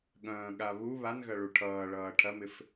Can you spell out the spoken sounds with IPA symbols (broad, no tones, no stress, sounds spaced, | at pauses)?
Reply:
ɠ ɐ̃ː ɠ a β u β a n ɣ ɐ ɭ u ʈʰ ʌː ɭ ʌː ʈʰ ɐ m ɪ f